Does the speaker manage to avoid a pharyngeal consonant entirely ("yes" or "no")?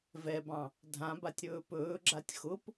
yes